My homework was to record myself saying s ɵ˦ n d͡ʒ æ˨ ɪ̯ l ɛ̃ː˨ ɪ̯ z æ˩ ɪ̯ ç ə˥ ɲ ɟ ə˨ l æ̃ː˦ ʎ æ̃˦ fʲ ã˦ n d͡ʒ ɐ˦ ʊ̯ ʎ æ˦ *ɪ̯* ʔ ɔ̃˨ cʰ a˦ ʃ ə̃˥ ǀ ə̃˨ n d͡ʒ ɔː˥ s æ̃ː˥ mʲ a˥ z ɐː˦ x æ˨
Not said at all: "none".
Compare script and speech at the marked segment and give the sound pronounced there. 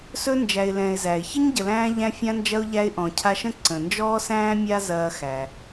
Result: ɪ̯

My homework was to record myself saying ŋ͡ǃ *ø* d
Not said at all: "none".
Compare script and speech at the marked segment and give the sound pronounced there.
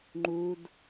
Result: u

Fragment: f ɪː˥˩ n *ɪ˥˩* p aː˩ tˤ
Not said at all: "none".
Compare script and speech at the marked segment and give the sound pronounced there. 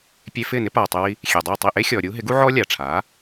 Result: ɪ˥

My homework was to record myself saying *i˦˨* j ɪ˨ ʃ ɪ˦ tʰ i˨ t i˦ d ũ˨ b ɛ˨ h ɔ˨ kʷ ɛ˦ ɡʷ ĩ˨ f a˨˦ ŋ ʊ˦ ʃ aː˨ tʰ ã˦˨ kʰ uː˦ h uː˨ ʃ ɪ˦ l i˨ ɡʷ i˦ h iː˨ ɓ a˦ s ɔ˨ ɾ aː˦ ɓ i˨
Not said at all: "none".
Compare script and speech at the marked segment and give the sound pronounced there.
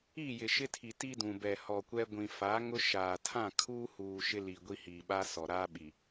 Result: i˦˨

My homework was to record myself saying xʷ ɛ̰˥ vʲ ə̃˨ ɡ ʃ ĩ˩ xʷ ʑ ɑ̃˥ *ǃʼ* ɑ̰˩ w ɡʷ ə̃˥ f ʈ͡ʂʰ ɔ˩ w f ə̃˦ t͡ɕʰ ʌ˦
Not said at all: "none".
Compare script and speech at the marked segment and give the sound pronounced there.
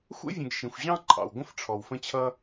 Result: ǃʼ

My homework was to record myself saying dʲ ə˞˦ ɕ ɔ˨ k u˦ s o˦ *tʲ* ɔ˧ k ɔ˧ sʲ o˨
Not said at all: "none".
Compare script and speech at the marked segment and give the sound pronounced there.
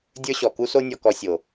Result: nʲ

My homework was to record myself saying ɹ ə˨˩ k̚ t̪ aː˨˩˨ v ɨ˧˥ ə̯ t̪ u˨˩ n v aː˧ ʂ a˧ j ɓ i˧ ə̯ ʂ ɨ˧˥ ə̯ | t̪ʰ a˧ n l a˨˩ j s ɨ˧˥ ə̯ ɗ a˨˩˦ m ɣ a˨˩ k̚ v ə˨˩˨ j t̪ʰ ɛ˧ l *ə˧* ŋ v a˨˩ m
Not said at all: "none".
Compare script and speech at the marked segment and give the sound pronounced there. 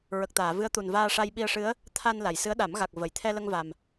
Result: ə˧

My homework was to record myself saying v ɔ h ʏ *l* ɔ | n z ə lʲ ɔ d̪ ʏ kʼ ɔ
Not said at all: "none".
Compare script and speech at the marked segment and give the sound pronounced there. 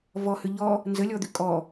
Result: ʎ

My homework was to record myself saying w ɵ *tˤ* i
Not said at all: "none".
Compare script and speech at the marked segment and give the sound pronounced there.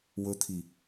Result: t̪ʰ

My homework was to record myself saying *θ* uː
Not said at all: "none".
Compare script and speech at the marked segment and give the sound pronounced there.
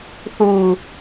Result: θ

